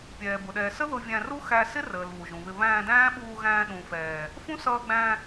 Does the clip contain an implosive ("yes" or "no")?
yes